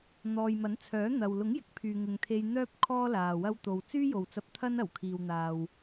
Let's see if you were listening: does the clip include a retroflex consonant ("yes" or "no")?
no